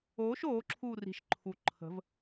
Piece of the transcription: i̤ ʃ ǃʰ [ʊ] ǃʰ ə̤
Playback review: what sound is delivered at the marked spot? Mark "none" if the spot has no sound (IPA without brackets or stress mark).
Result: u